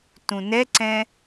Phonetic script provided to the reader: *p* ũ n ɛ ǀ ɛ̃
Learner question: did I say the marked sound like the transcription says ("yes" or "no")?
no